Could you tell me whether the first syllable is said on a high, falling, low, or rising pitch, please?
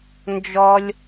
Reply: high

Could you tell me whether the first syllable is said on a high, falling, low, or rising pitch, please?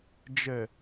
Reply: low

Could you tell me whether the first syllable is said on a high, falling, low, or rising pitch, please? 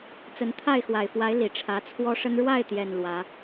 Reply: rising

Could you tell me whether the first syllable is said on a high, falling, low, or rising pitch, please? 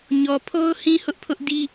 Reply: low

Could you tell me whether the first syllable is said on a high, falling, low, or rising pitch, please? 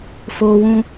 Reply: high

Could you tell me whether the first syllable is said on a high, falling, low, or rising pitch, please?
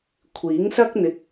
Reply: rising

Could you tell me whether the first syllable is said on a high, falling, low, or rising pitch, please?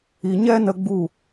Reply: low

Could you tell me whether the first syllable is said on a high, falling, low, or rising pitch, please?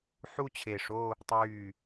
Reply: falling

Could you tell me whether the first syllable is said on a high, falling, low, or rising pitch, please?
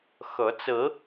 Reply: rising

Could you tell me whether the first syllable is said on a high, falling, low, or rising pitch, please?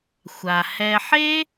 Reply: low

